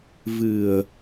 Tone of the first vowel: low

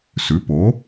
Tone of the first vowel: rising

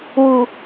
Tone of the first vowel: low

